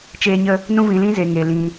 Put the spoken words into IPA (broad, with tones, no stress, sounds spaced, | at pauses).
t͡ʃ eː˧ ɲ ə˧ | n ũ˦ v ĩ˧ l ĩ˦ z e˧ ŋ e˧ l ĩ˧